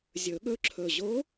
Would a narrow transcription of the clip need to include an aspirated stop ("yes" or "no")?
yes